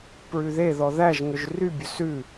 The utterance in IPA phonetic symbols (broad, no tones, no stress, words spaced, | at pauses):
pɹʉðeðɔ ðæʒŋɵʒ rybʲɵ sʉ